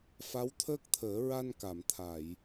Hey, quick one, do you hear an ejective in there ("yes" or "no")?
no